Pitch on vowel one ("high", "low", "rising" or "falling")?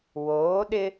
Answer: rising